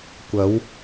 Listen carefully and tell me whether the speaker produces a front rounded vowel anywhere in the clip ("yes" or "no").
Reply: no